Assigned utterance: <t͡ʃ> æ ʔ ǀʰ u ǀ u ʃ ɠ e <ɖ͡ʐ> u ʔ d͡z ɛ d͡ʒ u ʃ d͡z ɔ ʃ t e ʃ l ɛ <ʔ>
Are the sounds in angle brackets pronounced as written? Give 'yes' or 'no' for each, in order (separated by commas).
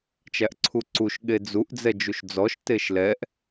yes, no, yes